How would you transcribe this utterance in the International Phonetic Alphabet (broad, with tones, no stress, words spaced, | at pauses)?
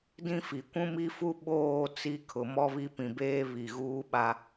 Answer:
dĩ˦fi˨ kʷũ˦mi˦fu˦ ɓoː˦˨ t͡si˦ kʰʊ˨mɔ˦βi˦ pĩ˨beː˦ βi˨ɣuː˦ɓa˦